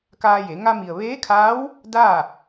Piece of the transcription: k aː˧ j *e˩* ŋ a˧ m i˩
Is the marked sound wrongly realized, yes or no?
yes